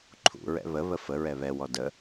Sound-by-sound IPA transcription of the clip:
ǃʰ ṵ ɹ ɛ̰ β ə β ə f ə ɹ ɛ β ɛ w ɔ d ə

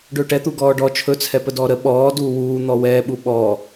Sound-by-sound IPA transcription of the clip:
ɖ ɵː ʈ ɛ t̪ u ɡ ɔː ɖ ɔ t͡ʃʰ ɵ t͡sʰ ɛ p ə d ɔː ɾ ə ɓ ɔː d uː w uː n̪ ɔ w ɛː ɓ u ɓ ɔː

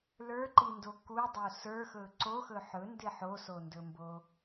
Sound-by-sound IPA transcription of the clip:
l ə˞ ǃ i n d o k u dˤ o s ə˞ x ɵ ǀ o x ɵ ħ ɵ n d ɪ ħ o s o n d ɵ m b o

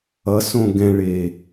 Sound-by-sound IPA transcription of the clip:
ʌ s õ ɡ ɛ̃ ɭ e

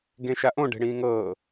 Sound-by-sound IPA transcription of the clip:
ɡ ẽ ʃ a ʔ õ ɖ e̤ ɽ ĩː ŋ ɤː

